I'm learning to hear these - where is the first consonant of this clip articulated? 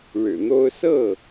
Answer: retroflex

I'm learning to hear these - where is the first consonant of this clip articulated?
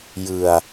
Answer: palate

